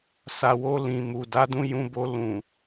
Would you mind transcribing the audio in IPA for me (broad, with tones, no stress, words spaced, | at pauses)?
sa˨wo˧ lĩ˨mu˨ da˨˦dũ˧jũ˧bo˧ lũ˨